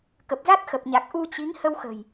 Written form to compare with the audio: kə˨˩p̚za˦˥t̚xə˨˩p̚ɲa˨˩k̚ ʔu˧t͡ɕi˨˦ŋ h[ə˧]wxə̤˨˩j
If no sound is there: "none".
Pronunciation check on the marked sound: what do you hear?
ə˧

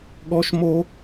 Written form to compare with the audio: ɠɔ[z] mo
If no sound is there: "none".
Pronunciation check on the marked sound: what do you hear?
ʃ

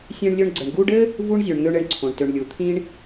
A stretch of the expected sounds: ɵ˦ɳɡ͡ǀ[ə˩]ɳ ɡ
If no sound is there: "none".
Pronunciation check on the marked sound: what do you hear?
ə˨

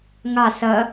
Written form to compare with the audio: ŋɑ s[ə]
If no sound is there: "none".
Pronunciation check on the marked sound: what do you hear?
ɐ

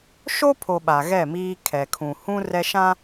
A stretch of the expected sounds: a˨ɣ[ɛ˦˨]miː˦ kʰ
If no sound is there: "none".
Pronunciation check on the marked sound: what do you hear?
ɛ˦˨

